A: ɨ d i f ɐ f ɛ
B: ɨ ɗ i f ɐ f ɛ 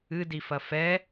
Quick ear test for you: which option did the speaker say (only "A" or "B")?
A